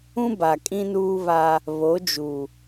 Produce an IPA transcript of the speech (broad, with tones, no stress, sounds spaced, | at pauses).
ũ˦ b a˨ kʼ ĩ˦ n uː˦ β a˦ | β o˨˦ d͡ʒ u˨